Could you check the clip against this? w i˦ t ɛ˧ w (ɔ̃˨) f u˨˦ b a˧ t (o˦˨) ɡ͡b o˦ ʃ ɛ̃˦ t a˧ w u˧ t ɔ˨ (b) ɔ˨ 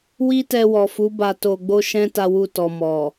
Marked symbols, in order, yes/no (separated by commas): no, no, no